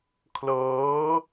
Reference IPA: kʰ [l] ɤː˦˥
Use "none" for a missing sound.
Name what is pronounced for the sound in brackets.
l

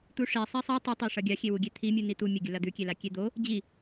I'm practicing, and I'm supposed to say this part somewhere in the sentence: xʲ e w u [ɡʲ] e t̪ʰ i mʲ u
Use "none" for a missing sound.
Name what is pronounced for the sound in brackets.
ɡʲ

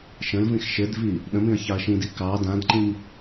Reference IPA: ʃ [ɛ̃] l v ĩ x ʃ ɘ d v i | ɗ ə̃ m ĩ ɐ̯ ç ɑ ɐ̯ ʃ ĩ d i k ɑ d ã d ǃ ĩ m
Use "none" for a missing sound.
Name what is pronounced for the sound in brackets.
ə̃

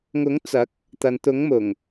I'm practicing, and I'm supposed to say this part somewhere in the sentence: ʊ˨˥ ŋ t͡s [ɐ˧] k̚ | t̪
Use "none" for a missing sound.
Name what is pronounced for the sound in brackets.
ɐ˨˥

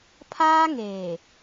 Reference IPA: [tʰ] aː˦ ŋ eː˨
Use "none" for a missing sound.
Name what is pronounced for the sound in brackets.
pʰ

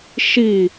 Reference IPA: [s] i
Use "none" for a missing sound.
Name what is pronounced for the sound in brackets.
ʃ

